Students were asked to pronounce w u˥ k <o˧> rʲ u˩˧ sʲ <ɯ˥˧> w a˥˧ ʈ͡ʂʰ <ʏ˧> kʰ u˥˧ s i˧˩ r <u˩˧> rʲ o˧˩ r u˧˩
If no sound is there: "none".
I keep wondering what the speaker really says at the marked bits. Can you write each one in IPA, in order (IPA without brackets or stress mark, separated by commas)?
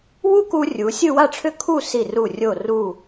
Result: u˧, ɯ˥˧, ʏ˥˧, u˧˩